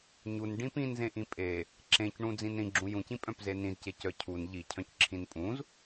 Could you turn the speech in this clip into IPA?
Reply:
ɲun ɖĩpĩnzẽ ʔĩpʼe | ǁẽcɳũ d͡zĩnɾĩɡ͡ǁũ jũcĩpʼœ̃pze nĩzce cœcʰun ʎicʰœ̃c ǁʰĩnpʼũz

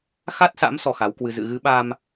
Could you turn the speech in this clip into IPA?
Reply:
xa˦˥t̚sa̰˧˥m sɔ˧xa˨˦wkwɨ˧ zɨ̰˧˨ɣɨ˨˦ɓa˧m

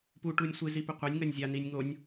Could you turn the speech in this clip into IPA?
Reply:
pu ʈunʲsʷɨzi pɘqʷanʲŋɐnʲ zʲaninʲ ŋonʲ

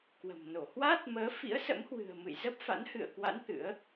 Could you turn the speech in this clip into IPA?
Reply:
kwə̤˨˩mno˧˩ hwaː˦˥t̚ məː˨˦fḭ˧˥ə̯sə̰˧˥mhwɨ̤˨˩ə̯ mɨ̰˧˨jzə˦˥p̚fa̰˧˥n hɨ̰˧˨ə̯kwa̰˧˥n t̪ɨ̰˧˥ə̯

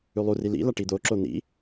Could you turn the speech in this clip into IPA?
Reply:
ʉlˠuri lḭla ʈid̪oǁo n̪ḭ

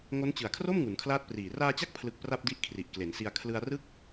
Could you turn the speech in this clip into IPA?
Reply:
ŋo˦˥nt͡ɕɯ˨˩a̯kʰro˥˩m ŋu˩˦nkʰlaː˦˥t̚priː˨˩ raː˧t͡ɕa˦˥k̚pʰlɯ˨˩k̚ pra˥˩p̚di˦˥ʔ kʰri˨˩ʔkle˩˦nsi˧a̯ kʰlɯ˧a̯rɯ˥˩k̚

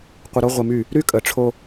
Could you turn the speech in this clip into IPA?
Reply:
qʷɨ˨ɾo˦ʁʷɨ˨my˦˨ | ɾy˦kʼə˨ʈ͡ʂʰo˦

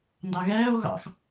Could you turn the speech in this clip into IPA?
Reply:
ndɑɣɛːo̯ ɣɑ̰x

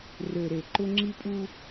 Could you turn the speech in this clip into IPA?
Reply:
rø˨ɾe˨ ǃʊ˦ŋ͡ǁi˦pʼu˦

